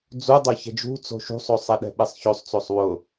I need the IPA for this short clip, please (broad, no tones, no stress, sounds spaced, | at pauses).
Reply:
d͡z u dˤ o ç ɛ̤ d͡ʒ ṳ t͡s o̤ ʃ ṳ sˤ o sˤ e ɗ ɛ̤ ɓ e sˤ ç o sˤ t͡s o sˤ w ʊ